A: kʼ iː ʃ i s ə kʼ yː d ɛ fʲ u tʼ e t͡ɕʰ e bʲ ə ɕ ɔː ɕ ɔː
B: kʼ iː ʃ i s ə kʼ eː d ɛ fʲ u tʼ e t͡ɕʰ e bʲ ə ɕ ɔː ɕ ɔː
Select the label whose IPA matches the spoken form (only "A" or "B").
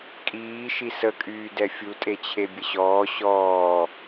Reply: A